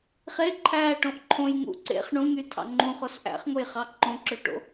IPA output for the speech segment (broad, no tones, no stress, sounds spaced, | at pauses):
χ e ǃʰ æː ʈ õ ʔ ǃʰ õ j ŋ ṵ ǀ ḛ χ ɳ ũ ŋ y tʰ ɑ̰ ŋ͡ǃ ũ χ o s ʔ æ̰ χ ŋ o j χ ɑ ǃ õ ǁ ø ʈ o̰